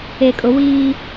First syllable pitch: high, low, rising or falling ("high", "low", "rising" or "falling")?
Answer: low